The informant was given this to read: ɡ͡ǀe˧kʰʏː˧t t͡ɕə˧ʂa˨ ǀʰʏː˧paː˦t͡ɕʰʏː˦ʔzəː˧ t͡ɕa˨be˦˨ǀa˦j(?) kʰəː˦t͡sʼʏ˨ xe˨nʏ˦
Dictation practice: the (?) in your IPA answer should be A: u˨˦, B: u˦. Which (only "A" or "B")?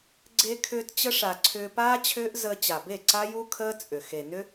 B